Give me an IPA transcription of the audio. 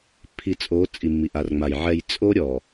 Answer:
pʰ i˨ t͡sʼ o˨˦ t͡sʼ i˨ mː i˨ ʔ a˨ r ŋ͡m a˨ j ʕ ɛ˨ j t͡sʼ o˦ ɾʲ ɔ˨

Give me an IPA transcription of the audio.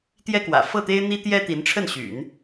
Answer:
t̪ j ɛ˥ k w ä̰˨˩ f ɤ˥˩ t̪ e˥ ɪ̯ n̪ i˥ t̪ j ɛ˥ t̪ i˧˥ n ʈ͡ʂʰ ə˥˩ n ɕ y̰˨˩˦ n

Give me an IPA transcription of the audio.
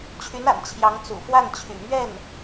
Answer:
t͡ɕʰ y˧˥ n a̰˨˩ n t͡ɕʰ j ɑ˧˥ ŋ t͡s ṵ˨˩ f w a˥˩ n t͡ɕʰ y̰˨˩ m ɥ ɛ˥˩ n

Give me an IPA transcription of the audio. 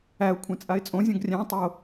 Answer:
æ ʊ̯ kʷʰ ẽ t͡sʼ a ɪ̯ t͡sʼ õ zʲ õ ɡ rʲ æ̃ tˤ o

